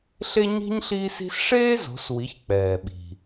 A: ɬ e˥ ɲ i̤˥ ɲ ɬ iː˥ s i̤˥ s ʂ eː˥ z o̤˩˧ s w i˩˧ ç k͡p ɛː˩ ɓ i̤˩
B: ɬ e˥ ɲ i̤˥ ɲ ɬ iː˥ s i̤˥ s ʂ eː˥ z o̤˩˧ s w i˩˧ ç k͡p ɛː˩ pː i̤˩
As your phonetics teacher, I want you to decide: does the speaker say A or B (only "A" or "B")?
A